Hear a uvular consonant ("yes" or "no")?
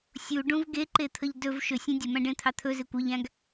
no